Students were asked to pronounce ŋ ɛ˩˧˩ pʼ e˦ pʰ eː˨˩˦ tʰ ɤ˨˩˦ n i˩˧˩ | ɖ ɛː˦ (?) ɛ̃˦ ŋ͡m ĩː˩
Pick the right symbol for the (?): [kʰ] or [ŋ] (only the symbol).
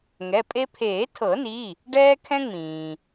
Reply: kʰ